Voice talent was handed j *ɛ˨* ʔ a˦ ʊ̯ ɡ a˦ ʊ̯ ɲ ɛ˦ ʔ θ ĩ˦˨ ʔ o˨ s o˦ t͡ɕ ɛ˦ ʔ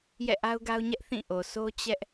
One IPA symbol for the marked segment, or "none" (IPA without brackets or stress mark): ɛ̰˦˨